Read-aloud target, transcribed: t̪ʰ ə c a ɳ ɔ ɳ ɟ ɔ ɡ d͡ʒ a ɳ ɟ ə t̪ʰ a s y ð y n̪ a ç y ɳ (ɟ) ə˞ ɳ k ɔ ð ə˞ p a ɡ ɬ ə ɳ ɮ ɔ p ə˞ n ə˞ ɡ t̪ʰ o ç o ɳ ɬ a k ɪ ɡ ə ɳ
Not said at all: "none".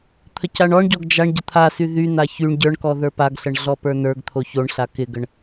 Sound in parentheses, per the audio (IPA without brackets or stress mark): ɟ